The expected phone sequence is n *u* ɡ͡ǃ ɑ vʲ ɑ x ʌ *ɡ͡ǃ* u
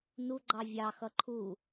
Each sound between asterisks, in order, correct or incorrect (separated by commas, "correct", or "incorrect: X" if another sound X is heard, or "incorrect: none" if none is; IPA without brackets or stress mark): correct, incorrect: ǃʰ